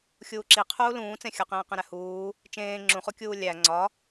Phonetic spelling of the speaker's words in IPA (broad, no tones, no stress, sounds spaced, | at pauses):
xʲ uː ǁ i qʰ uː l ũː t͡s ẽ xʲ ɒ q ẽː q ẽ ɾ æ h uː | t͡ʃ ẽː ŋ͡ǁ ũ χ u kʲ uː lʲ æ ŋ͡ǀ ɒ